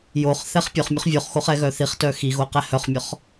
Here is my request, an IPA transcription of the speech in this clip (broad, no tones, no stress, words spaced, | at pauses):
joχ θɛχpʲœχmʲoχ vʲoχxoχ ɛɣœθiχtœ xiɣo qɛhœχmʲɔχ